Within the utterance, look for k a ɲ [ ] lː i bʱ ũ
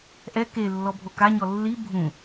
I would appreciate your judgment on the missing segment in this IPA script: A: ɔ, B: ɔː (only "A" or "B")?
A